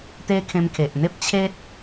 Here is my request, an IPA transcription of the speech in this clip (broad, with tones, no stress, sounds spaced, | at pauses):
t̪ e˦ kʰ ẽ˧ m kʰ e˨ ʔ n̪ e˦ p̚ t͡ɕʰ e˦ t̚